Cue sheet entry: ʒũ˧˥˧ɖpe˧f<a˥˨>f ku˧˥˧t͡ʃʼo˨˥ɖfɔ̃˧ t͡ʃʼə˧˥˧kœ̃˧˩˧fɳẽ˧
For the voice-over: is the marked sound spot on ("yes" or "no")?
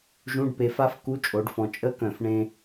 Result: no